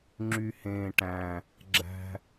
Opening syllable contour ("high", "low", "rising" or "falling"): low